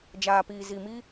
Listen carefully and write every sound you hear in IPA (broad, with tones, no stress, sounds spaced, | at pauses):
d͡ʒ aː˨ p iː˨ z i˨ m i˦